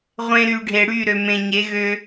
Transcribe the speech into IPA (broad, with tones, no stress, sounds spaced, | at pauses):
ʁʷ ẽ˨ ɾ y˨ ɖʱ e˨ ɽ y˦˨ ɾ ø˨ m ẽ˨ ɲ e˨˦ ɣ ø˦